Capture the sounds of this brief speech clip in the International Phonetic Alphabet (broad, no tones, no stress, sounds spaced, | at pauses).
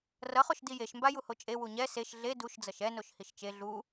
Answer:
r ʌ χ o ʃ d i j e ʃ m b a j u h o t͡ʃʼ e w u ɲ ɛ s e ʃ ɮ e d u ʃ d͡z ʌ ʃ ɛ n o ʃ h i ʃ t͡ʃ e ɮ u